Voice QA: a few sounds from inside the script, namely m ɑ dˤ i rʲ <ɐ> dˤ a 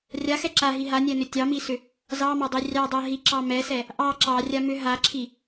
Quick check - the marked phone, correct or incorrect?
incorrect